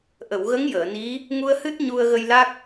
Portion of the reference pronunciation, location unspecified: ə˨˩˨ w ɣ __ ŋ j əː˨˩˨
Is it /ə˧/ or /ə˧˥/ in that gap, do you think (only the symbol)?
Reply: ə˧˥